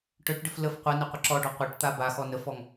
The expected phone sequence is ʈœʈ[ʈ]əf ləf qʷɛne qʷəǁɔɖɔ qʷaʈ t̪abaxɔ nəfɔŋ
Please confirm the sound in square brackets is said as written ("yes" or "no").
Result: no